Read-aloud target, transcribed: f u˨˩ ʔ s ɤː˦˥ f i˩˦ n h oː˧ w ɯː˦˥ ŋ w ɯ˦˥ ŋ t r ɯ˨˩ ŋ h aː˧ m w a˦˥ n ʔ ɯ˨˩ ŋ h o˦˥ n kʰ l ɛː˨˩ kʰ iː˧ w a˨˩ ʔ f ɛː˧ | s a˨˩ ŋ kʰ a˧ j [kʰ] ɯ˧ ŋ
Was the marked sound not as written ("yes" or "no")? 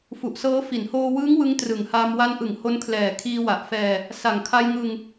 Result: yes